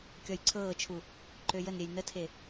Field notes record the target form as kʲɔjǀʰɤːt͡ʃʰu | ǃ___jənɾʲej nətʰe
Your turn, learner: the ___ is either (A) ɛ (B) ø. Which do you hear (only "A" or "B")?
B